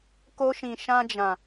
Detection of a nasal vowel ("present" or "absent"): present